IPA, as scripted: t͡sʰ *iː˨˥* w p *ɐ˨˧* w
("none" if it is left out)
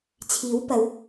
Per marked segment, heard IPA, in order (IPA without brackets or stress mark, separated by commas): iː˨˥, ɐ˨˧